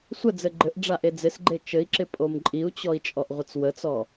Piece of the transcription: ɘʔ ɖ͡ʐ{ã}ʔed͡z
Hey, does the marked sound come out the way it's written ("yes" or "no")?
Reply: no